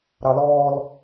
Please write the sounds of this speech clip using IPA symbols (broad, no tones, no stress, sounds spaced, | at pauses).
ɾ ɑ l ɔː l